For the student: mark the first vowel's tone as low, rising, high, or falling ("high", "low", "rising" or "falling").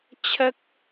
high